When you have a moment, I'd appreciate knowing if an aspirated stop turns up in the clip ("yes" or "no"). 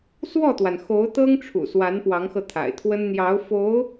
yes